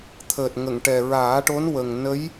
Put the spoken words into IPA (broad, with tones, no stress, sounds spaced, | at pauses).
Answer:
t̪ʰ əː˨˩ t̚ ŋ ə˨˩˨ ŋ ʈ ɛ˨˩ ɹ aː˨˩˦ ʈ o˧˥ n w ə˨˩ ŋ n ə˧˥ j